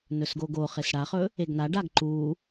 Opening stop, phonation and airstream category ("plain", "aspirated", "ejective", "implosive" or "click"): plain